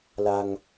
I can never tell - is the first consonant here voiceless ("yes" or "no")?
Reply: no